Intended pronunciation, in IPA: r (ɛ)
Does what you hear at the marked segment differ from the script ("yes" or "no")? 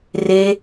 yes